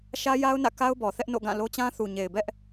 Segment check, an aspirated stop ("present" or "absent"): absent